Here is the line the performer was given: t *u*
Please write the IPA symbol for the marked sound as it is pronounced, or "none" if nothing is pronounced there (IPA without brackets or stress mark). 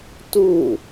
u